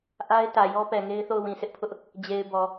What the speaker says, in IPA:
ʔa˦ɪ̯tä˨jɔ˦ pɛ˨ŋe˦ɪ̯θo˦˨ʊ̯ wĩ˨sʰɪ˦ʔpʰʊ˦ʔ | d͡ʑe˨ɪ̯ bɔ˨

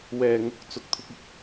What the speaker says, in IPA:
wɛː˨ŋʊ˧k̚ t͡sʊ˧k̚t̪ʰʊ˥k̚ ɪ˨k̚

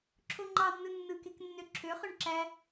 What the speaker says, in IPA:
ǁʰoŋ͡ǃɑnːɯ nːɯkek nːøǁʰøχøɳ ǁæ

